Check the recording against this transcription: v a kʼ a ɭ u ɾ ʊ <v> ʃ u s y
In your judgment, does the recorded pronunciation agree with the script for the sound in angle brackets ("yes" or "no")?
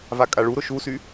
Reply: no